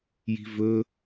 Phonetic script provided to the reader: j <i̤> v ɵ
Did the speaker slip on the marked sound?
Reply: no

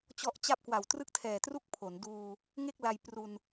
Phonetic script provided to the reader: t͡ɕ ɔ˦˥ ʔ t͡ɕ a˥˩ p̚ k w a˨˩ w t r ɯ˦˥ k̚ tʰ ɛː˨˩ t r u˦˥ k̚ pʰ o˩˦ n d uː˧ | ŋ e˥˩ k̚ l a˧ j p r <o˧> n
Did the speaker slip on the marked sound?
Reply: yes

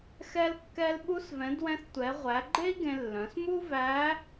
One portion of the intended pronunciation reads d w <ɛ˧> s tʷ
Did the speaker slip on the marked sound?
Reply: yes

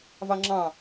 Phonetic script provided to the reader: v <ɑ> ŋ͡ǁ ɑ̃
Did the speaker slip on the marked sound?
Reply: no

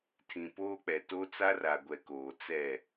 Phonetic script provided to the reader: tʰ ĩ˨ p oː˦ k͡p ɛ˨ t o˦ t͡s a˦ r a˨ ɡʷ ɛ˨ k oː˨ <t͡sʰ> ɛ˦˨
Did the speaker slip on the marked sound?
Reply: yes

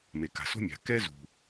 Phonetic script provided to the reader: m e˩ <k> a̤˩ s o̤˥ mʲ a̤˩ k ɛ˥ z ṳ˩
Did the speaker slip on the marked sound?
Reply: no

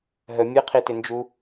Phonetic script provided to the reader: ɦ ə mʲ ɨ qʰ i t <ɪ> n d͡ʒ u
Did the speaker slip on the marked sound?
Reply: no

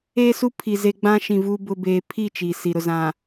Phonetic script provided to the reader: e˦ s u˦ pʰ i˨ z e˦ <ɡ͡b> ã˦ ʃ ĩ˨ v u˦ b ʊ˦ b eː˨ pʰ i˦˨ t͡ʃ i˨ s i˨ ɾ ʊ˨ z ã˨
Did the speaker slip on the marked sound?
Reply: no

